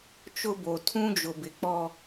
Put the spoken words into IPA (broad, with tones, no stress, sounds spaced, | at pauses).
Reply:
t͡ʃ ʊ˦ b o˨ tʰ ũ˦ d͡ʒ ʊ˨ b ɪ˨ k͡p ɔ˦